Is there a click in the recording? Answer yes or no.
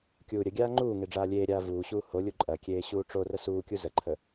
yes